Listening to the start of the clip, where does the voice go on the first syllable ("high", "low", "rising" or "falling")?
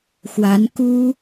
rising